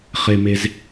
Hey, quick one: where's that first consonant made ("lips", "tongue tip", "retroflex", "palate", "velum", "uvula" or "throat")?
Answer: uvula